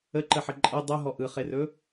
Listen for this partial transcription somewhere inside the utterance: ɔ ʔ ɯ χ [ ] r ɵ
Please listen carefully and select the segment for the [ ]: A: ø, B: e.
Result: B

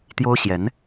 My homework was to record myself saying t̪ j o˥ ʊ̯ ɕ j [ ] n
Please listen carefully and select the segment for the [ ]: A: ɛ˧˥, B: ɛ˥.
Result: A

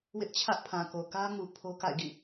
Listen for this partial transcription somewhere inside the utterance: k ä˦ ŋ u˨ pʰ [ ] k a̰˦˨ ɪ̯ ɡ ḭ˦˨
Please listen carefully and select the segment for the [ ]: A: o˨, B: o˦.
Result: B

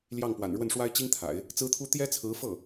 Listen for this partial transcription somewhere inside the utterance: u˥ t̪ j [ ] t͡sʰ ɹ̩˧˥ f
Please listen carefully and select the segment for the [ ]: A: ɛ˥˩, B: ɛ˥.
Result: B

